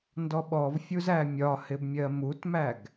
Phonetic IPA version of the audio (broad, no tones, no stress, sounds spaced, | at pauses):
n d ɔ ɓ ɔ v fʲ u z æ mʲ ɒ h ɪ b mʲ ɜ m u t m æ ɡ